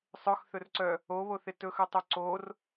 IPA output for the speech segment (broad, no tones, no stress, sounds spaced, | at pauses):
sˤ œ x θ ɵ r ǀ œ | o β o θ ɪ t ɵ x œ tˤ œ ǀ o r